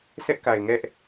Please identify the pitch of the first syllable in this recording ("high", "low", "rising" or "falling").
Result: high